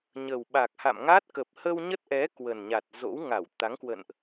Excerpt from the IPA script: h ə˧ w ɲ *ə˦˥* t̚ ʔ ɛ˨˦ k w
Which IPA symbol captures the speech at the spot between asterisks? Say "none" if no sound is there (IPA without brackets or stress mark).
ə˦˥